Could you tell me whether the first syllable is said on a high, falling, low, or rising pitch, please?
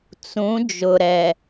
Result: rising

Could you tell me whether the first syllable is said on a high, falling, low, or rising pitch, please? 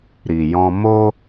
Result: low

